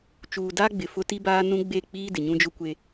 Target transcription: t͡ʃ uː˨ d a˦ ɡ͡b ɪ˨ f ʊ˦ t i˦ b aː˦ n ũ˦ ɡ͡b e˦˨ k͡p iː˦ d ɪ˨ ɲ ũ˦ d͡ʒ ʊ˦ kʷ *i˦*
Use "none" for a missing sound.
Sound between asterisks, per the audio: e˦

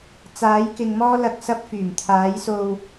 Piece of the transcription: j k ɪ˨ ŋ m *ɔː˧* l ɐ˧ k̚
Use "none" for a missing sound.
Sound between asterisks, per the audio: ɔː˥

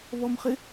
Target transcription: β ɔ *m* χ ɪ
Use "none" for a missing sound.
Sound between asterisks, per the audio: m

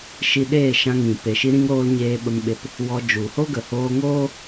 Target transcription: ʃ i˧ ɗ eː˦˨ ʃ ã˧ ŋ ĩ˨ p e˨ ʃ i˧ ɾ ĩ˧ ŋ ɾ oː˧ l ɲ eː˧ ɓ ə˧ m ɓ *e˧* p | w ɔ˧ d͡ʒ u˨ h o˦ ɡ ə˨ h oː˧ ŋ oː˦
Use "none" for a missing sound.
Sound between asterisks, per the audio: e˧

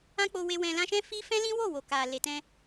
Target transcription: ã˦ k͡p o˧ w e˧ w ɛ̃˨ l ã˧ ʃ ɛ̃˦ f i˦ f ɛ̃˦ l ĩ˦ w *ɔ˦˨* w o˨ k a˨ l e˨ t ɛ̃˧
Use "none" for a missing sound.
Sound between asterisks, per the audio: o˦˨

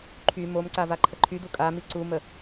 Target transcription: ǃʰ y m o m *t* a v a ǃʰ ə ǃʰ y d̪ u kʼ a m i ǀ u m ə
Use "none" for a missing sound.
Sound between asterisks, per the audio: ǀ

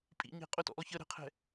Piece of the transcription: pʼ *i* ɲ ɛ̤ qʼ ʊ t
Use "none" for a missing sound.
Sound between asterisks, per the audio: ḭ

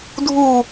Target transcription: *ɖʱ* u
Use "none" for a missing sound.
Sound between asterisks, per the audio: dʱ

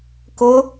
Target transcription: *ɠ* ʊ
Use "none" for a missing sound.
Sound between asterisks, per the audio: k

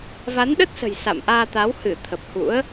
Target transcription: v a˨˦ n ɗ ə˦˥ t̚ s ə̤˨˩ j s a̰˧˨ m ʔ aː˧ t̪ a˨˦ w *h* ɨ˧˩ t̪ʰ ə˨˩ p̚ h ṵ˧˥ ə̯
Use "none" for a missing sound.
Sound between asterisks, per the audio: h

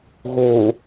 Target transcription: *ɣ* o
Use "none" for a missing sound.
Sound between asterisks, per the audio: ɣ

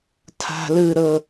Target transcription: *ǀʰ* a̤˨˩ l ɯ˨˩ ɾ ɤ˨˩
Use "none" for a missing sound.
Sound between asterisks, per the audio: tʰ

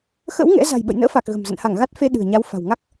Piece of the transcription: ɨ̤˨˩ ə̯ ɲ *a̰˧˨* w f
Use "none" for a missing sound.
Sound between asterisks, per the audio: a˨˦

